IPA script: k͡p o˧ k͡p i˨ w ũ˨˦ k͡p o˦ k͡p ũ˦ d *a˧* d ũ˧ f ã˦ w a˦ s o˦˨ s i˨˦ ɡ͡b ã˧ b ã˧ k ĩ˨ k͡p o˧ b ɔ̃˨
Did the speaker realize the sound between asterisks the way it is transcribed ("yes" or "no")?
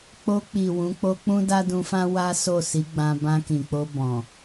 no